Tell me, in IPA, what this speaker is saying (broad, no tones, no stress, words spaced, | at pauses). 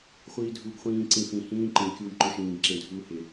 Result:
χʷiːdʱuːɡχʷĩː ǀĩfĩ hĩː ǃĩ kʲuːjǃʊːʃĩːɡ ǁẽdʱuːhɪ